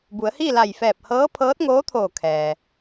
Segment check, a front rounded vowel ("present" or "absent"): absent